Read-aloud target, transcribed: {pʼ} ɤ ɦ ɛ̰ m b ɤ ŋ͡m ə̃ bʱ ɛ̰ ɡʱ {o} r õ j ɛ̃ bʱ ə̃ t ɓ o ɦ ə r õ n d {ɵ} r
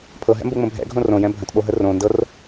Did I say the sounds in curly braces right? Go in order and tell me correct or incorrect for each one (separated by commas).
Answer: incorrect, incorrect, incorrect